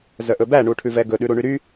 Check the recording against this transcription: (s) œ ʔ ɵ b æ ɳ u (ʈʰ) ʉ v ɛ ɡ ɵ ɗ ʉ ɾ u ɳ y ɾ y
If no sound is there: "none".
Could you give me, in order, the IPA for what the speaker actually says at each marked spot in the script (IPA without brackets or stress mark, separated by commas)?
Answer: z, ʈʰ